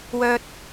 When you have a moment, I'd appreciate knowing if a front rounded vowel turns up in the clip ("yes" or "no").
yes